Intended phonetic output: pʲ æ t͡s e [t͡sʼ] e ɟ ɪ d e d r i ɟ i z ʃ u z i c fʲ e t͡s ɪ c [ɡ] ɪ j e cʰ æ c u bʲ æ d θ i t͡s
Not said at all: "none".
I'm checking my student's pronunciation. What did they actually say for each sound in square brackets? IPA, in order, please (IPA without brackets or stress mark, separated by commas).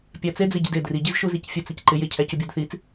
d͡z, ǃ